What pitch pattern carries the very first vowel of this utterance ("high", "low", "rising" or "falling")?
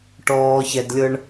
low